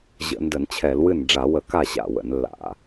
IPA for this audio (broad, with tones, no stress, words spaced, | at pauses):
ʑə̰˧˩˧ndə˧˩˧nt͡ɕʰɛ˧˩˧lwɨ˥˩n ɖ͡ʐa˧˩˧wə˧˩˧ka˥˩ ɕa̰˥˩wə̰˧˩˧nlːa̰˧˩˧